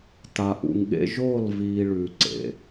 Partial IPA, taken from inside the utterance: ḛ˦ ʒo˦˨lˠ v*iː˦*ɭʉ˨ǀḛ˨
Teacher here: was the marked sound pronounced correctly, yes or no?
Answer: yes